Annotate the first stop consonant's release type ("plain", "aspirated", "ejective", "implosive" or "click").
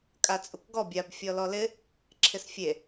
ejective